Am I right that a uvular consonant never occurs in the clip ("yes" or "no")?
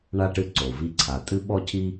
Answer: yes